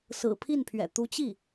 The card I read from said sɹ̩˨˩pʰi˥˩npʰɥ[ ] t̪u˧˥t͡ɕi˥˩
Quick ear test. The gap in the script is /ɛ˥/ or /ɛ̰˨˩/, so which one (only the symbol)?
ɛ̰˨˩